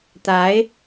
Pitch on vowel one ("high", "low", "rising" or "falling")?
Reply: rising